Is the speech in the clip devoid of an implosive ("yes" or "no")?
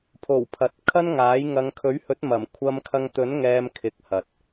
yes